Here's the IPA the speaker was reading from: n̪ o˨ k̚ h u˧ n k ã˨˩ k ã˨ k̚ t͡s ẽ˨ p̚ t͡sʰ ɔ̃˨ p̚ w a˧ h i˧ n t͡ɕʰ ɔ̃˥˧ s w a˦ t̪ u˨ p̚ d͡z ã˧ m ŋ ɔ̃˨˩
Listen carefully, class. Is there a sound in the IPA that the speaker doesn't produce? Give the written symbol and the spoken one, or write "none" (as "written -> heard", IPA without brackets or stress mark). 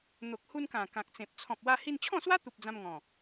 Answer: none